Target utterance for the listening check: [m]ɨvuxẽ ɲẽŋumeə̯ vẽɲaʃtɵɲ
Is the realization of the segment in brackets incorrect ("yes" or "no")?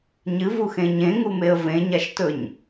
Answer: yes